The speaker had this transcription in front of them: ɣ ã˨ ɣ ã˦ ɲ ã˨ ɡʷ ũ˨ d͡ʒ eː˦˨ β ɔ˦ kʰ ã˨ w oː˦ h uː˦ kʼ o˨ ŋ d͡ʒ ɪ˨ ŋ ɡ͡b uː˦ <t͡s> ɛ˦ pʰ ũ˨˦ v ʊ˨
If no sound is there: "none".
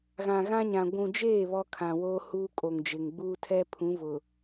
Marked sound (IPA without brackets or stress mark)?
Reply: tʰ